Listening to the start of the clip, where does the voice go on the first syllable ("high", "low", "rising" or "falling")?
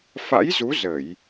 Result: rising